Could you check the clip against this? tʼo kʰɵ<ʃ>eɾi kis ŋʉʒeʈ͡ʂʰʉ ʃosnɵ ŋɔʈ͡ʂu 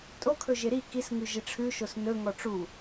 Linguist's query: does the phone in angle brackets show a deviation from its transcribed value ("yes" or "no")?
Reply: yes